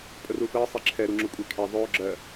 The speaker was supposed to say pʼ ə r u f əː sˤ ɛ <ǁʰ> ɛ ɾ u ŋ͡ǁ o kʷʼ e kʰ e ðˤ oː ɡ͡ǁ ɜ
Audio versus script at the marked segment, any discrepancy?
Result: no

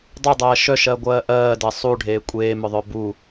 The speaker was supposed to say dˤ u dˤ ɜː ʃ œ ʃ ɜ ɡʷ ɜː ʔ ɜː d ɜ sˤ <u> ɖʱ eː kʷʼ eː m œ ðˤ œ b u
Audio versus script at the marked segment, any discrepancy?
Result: no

